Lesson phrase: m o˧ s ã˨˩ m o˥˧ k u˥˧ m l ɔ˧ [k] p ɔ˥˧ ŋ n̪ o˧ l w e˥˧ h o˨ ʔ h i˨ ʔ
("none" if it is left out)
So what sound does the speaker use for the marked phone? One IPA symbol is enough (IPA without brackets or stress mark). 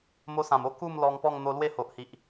ŋ